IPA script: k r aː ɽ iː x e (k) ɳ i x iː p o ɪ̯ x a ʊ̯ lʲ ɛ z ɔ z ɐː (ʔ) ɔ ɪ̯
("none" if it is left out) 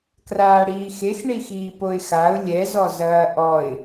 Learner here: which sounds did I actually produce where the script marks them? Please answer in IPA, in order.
x, ʔ

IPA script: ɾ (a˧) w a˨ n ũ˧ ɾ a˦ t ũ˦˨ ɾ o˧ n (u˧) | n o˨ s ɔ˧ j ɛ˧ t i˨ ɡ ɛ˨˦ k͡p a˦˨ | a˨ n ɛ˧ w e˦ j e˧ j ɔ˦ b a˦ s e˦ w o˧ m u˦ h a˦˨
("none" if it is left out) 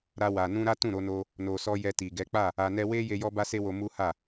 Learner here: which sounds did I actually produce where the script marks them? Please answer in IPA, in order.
a˧, o˧

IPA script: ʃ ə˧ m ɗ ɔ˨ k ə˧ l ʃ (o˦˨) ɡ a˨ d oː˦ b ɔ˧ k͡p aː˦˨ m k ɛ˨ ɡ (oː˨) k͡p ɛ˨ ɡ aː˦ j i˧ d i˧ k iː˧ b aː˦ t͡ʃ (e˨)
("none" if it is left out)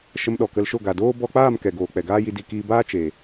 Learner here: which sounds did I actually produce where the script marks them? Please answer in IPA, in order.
o˦˨, oː˨, e˨

